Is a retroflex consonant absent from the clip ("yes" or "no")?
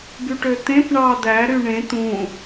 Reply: no